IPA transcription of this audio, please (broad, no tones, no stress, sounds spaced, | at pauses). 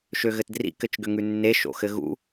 ʃ ø ɣ ɘ t d r ḭ k ɘ t͡ʃ ɡ ʏ ŋ ʉ nː e ʃ o̰ x ɘ ɣ ṵ